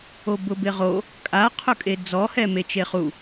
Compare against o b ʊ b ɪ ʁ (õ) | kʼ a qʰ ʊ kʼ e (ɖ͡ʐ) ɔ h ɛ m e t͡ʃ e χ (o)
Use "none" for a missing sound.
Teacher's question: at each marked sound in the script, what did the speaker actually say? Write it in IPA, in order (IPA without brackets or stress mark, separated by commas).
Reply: o, d͡z, u